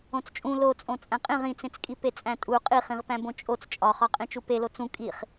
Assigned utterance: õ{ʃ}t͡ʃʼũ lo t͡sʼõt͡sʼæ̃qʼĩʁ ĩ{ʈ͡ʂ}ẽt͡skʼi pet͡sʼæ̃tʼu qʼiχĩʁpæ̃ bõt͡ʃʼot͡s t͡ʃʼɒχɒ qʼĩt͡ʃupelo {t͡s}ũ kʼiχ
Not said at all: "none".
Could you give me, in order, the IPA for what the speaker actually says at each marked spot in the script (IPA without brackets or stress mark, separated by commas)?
t͡s, t͡s, t͡s